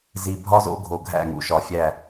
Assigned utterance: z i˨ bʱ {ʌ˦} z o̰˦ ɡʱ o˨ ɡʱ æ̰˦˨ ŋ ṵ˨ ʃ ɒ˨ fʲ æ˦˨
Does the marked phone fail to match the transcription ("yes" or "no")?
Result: yes